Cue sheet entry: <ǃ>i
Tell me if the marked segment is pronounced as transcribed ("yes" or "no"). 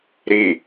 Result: no